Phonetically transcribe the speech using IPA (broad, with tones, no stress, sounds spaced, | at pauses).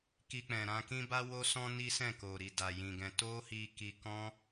k i˧ k͡p ɛ̃˨ ɾ ã˧ k ĩ˦ b a˦ w o˦ s ɔ̃˦ n i˦ s ɛ̃˦˨ k o˨ ɾ i˨ d a˨ j ĩ˨ ɡ ɛ̃˧ t o˦ h i˧ k i˧ k ɔ̃˦